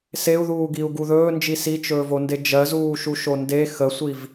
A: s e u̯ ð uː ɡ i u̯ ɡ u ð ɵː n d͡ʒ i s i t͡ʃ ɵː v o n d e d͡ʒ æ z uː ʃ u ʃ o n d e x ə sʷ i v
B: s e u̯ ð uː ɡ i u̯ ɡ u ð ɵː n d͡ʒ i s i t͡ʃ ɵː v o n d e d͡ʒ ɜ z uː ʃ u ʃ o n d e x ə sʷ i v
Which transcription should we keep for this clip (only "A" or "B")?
B